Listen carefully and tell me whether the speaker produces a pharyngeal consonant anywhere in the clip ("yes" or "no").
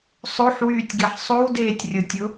yes